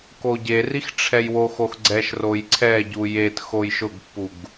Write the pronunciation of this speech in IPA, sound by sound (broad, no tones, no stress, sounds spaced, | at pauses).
k o ɟ e r i x ʈ͡ʂʰ ɛ j w o x o x ɡ͡ǀ ɛ ʃ r o j ǀʰ ɛ ɟ u j e t x o j ʃ ʊ ɡ pː u ɡ